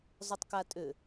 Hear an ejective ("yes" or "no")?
yes